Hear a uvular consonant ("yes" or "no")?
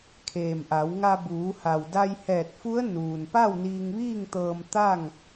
no